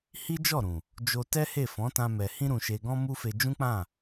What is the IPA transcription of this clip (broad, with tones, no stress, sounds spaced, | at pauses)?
h i˦ d͡ʒ ɔ˦˨ ɾ ũ˨ | d͡ʒ o˧ t ɛ˦ h e˦˨ f ɔ̃˨˦ t ã˧ m ɛ˨ h ĩ˧ ɾ ũ˨ ʃ e˨ ɡ ɔ̃˧ m u˦ f e˧ d͡ʒ ũ˦ k͡p ã˦˨